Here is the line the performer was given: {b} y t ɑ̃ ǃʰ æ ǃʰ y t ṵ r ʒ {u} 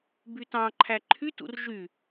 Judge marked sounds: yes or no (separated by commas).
yes, no